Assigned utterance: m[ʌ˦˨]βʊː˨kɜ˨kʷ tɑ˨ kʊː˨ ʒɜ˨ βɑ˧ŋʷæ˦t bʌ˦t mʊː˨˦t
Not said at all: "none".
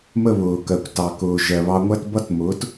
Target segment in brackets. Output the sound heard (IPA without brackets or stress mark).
ə˦˨